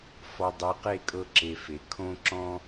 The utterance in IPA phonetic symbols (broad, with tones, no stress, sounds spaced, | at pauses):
f ɔ˧ dˤ e˧ q e˥˧ kʼ ɤ˥ ǁ e˧ f e˩˧ kʰ õ˥ ǁ ɔ̃˥